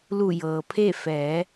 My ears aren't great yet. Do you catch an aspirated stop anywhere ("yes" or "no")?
yes